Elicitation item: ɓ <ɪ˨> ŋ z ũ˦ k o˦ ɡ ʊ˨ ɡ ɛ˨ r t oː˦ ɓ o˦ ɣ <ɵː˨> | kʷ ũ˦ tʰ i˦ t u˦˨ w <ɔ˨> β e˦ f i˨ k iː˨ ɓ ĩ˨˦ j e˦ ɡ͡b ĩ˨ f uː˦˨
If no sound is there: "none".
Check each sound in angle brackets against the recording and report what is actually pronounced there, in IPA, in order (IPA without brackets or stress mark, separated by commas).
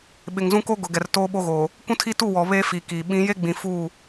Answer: ɪ˨, oː˨, ɔ˨